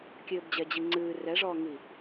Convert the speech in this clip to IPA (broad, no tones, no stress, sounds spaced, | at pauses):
kʲ ɘː b d͡ʑ ɛ d͡ʑ i ŋ͡ǀ ɨː r ɛ ʐ ɔː ŋ i